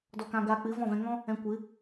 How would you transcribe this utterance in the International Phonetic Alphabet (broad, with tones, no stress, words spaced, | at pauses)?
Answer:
dɔ˧kã˧ɡaː˧k͡pɨ˨˦ vɔ̃˦˨vɛ̃˧ ŋɔ̃˦ | ɛ̃˧ kʷɨ˨˦